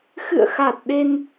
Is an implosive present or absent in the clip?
present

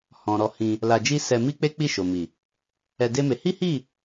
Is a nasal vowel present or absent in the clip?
present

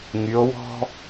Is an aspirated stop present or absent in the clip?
absent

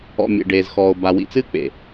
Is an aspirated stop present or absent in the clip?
absent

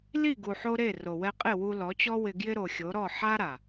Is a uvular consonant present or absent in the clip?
present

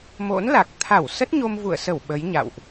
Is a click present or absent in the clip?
absent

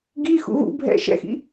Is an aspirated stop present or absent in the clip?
absent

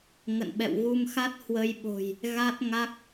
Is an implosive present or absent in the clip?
present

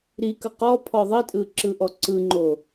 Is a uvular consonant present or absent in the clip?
present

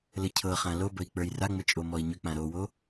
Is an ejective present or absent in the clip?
present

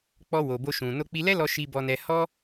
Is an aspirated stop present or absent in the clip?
absent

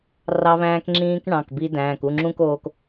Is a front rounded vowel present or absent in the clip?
absent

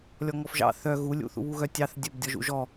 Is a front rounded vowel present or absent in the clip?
present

